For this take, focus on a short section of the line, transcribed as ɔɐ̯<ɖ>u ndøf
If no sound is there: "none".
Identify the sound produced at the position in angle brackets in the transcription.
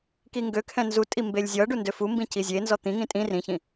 ɖ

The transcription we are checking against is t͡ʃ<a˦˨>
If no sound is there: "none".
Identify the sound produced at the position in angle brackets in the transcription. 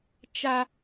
a˦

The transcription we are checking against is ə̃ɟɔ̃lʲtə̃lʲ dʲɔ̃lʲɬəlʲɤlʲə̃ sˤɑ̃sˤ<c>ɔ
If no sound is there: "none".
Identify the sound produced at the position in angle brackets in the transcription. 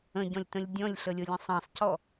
c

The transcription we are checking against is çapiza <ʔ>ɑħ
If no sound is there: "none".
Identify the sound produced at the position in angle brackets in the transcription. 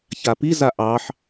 ʔ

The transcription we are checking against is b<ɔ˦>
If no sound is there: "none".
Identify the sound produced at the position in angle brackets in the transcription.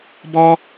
ɔ˦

